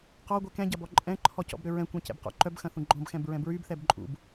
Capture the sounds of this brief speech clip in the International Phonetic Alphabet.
q ɔ ɡʷ ɛ k ɛ̃ ɟ ɐ b ɔ ǃʼ ɛ̃ ǃʰ ɔ c ɔ̰ b ɾ ʏ ɹ ɛ̃ kʷ ɛ̃ c ɛ̰ b q ɔ̰ ǃ œ b x ɐ̃ θ ũ ɡ͡ǃ ɔ̃ b x ɛ̃ b ɹ ɛ̃ b ɹ y b θ ɛ b ǃʼ ṵ b

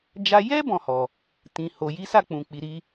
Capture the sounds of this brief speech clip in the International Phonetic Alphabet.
d͡ʒ a˧ j ɛ˦ b ɔ̃˦˨ h ɔ˨ | t ĩ˨ h o˨ j i˨˦ s a˦˨ k͡p ũ˨ k͡p i˨ ɾ i˧

